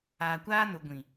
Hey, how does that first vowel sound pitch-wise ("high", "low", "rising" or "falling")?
low